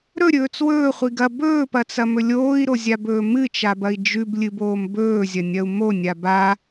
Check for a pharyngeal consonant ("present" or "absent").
absent